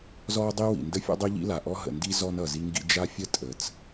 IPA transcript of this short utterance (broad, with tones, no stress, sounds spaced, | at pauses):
z ɔ˥ dˤ i˥ w ḭ˩ n d ə˥ fʲ ɔ̰˥ dˤ i˥ ʎ ḭ˥ l a˩ ʔ ɔ˥ ɦ ə̰˩ n d i˥ z ɔ˥ n ʌ˩ z i˥ ŋ ɡ ḭ˥ d͡ʒ a˥ fʲ ə˥ tʼ ə˩ t͡s